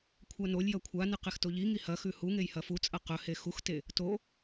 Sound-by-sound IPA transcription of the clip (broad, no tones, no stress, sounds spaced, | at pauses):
kʷʰ a n o lʲ j ɐ kʷʰ a n ɨ q e x t o ʎ i ŋ i h ɐ x ʉ h u ŋ e j h ɐ f u t͡sʼ ɐ q ɵ h e x u x t e | t o